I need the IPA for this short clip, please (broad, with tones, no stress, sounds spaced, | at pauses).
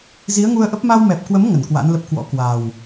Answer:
z i˨˦ ə̯ ŋ u˧ ə̯ ʔ ə˦˥ p̚ m a˧ w m ɛ˨˩ p̚ k w ə˨˦ m ŋ ə˧˩ n k w a̰˧˥ n l ə˦˥ p̚ k w ɔ̰˧˥ k w a˨˩ w